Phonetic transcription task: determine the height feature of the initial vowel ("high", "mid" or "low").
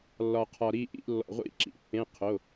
low